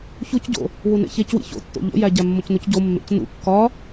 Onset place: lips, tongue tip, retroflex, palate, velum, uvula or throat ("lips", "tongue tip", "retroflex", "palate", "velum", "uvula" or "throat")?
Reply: palate